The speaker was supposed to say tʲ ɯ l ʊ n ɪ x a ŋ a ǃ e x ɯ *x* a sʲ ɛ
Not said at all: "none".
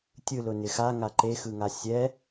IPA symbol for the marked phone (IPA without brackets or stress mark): ŋ